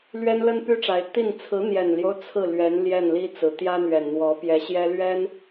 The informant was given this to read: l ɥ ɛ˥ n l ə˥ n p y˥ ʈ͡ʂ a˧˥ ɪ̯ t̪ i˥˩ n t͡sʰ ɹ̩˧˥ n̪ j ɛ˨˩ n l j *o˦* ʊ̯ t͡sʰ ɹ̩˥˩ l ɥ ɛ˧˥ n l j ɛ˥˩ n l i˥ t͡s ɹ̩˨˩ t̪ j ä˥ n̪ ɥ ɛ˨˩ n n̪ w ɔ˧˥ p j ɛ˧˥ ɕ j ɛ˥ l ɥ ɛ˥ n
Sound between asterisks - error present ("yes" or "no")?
no